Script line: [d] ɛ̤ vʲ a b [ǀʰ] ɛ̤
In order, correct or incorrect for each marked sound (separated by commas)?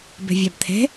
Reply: incorrect, incorrect